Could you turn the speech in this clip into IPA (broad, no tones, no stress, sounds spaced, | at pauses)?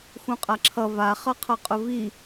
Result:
x ũ qʼ a ǁʰ ʌ v a χ ʌ qʰ ʌ qʼ ʊ v i